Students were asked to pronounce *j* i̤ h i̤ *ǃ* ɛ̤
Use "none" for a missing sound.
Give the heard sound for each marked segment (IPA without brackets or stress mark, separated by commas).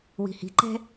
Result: w, ǃ